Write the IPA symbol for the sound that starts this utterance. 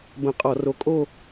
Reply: b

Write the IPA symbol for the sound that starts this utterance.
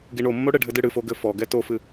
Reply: ɡ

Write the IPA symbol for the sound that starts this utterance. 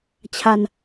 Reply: t͡ɕʰ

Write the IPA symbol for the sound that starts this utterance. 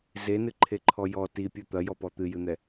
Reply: z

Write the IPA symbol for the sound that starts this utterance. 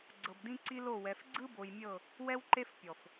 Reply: ɡ͡ǀ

